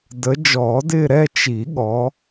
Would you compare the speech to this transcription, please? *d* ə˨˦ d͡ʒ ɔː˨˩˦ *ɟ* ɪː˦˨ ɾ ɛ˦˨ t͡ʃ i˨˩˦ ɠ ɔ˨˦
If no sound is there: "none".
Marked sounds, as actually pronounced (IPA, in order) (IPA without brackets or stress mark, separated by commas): d, d